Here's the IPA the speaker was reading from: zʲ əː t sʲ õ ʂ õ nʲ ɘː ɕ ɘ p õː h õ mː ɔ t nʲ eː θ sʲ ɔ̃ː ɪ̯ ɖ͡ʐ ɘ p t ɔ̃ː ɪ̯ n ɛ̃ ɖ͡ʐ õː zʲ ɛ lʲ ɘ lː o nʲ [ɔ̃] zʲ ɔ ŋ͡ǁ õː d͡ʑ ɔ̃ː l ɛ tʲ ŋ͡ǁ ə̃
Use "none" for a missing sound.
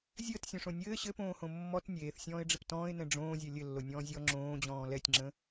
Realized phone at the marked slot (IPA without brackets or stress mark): ɔ̃ː